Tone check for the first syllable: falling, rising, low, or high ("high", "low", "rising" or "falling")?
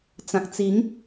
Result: low